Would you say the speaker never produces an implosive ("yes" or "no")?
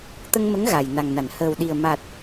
no